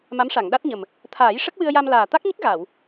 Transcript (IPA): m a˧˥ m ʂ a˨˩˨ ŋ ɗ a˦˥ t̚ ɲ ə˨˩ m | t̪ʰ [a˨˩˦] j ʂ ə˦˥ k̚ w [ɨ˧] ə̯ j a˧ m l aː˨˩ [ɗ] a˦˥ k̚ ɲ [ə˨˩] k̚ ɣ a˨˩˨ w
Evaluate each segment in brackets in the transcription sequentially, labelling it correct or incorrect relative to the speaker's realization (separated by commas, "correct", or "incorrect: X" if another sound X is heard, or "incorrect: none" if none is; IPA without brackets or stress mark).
incorrect: aː˨˩˦, correct, incorrect: t̪, incorrect: ə˦˥